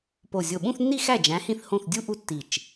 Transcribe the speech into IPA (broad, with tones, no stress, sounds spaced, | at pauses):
p o˧˩ zʲ o˧˩ ɓ ũ˥˧ θ nː i˥˧ x æ˥˩ d͡ʒ æ̃˨˥ h ĩ˥˩ θ h õ˥˩ θ dʲ u˥˧ ʔ u˥˧ tː i˧˩ t͡ʃ